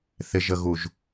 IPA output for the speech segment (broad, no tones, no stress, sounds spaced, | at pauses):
θ ɪ ʒ ə ɣ u ʒ